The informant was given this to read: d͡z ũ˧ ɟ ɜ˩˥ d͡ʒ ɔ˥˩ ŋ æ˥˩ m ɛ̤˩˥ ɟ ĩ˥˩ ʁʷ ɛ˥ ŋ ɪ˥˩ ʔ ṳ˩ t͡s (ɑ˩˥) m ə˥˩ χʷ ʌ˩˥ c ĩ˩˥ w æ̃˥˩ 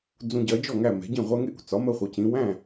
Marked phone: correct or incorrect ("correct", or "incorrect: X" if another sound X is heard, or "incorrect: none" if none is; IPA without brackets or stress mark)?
incorrect: ɒ˩˥